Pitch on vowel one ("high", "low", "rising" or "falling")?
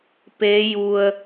rising